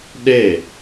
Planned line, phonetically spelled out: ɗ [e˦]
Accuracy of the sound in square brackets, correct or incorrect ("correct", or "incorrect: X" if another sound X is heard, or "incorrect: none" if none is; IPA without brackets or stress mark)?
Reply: incorrect: e˦˨